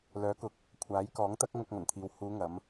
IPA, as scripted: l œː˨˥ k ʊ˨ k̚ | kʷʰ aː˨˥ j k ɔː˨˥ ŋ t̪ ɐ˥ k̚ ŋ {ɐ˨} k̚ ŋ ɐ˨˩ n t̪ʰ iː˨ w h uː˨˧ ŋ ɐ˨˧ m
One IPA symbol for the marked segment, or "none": ɐ˧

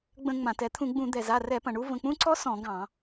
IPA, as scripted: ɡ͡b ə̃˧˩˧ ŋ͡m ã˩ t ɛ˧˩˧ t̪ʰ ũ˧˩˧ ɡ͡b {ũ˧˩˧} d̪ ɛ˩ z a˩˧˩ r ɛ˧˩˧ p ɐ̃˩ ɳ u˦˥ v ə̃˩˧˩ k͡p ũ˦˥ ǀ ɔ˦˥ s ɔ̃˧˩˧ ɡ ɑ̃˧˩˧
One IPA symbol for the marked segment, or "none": ũ˧˩˧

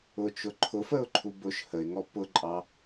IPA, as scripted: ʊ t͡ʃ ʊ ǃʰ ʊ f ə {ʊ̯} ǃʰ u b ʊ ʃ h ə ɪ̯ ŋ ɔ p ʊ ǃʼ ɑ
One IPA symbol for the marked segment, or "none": ʊ̯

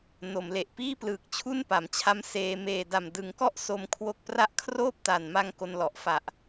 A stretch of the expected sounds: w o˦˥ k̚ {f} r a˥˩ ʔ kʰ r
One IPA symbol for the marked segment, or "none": p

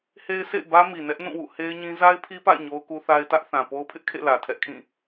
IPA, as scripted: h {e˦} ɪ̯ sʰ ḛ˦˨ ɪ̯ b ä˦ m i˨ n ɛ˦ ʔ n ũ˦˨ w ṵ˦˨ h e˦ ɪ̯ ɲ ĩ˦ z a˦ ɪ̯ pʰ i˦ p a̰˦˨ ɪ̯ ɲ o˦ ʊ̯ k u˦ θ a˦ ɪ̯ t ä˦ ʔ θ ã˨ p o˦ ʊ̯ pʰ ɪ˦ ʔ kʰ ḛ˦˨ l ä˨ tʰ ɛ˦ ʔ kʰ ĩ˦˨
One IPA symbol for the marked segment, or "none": e˦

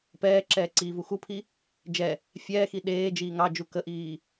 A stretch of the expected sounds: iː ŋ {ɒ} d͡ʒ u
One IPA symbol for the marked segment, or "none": ɑ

